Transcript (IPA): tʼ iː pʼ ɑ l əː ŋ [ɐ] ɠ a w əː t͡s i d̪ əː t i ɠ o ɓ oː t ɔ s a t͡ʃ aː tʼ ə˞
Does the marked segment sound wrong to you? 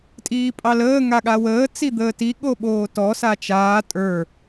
yes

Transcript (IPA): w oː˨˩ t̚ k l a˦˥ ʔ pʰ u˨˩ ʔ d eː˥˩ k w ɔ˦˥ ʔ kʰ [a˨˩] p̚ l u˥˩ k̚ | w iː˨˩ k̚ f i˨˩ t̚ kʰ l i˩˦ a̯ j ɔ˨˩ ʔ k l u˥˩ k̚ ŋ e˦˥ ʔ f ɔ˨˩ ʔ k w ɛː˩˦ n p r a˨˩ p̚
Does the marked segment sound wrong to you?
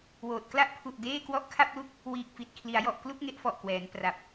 yes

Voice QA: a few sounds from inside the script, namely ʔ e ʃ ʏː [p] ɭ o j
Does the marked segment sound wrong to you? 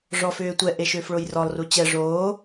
yes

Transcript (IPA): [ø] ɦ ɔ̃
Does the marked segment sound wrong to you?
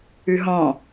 yes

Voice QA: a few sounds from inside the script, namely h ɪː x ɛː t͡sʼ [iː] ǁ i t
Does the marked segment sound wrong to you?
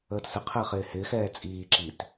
no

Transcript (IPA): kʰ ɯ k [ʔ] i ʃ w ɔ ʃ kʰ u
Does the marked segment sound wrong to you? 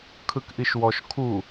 no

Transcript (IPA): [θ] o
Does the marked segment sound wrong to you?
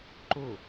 yes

